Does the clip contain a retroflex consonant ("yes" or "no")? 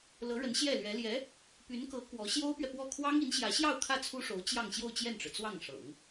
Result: yes